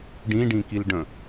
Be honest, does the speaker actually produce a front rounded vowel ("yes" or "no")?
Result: no